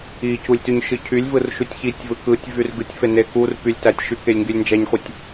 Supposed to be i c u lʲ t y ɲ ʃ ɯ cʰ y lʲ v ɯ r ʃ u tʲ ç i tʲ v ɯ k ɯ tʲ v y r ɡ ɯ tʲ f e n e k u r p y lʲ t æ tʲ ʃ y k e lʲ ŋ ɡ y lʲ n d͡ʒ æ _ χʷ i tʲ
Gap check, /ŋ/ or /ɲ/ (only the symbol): ɲ